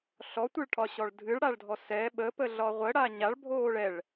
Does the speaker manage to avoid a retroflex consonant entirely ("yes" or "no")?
no